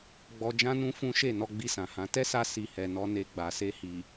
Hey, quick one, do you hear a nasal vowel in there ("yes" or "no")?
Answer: yes